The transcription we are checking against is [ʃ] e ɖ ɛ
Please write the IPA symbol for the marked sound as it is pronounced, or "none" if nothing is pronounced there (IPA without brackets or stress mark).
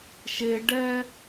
ʃ